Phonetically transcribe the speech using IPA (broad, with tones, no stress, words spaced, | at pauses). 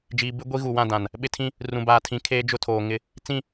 d͡ʒiː˨ bɪ˦ ɡʷi˦ɣu˨wã˦˨ dã˨n | ɓɪ˦tʰĩ˦ | rũ˨baː˨tʰĩ˨ kʰeː˦d͡ʒʊ˦tʰoː˨ ŋɪ˦˨ | t͡sĩ˦˨